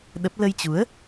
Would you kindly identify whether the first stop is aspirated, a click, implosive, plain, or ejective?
implosive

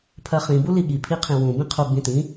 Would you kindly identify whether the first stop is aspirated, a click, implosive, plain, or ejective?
aspirated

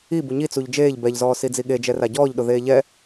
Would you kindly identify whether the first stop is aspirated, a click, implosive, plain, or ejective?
plain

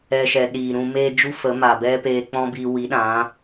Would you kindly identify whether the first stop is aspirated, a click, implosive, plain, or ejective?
implosive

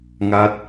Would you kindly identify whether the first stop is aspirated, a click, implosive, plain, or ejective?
plain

